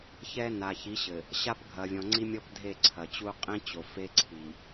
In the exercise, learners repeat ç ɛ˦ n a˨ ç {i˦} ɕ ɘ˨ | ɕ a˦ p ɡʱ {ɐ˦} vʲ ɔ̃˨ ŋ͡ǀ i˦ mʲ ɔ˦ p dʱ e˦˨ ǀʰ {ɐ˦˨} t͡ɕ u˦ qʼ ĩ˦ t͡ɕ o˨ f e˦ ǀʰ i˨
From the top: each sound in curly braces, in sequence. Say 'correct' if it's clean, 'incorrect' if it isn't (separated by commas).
incorrect, incorrect, incorrect